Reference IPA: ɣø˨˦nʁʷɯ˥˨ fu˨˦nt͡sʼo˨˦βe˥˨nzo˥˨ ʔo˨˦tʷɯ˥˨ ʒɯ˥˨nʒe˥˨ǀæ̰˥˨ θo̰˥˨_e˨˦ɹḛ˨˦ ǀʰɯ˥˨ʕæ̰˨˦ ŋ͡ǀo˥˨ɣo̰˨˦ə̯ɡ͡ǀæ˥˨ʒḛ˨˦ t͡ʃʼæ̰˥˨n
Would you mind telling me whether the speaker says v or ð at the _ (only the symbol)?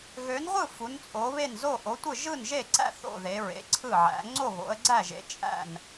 ð